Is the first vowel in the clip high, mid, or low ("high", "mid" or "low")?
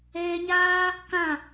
mid